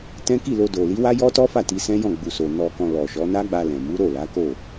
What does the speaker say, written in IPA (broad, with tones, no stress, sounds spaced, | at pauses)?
t ɛ̃˦ k i˦˨ l o˧ d o˨ l i˨˦ w a˦ j ɔ˦ t ɔ˦ f a˦˨ t i˧ s ɛ̃˦ j ɔ̃˦˨ ɡ͡b u˨ s o˨ n ɔ˧ k ɔ̃˧ l ɔ˨ ʃ ɔ˨˦ n a˦ ɡ͡b a˧ l ɛ̃˨ m u˨˦ ɾ o˦˨ l a˨˦ k o˦˨